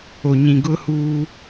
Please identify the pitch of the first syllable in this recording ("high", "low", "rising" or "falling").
low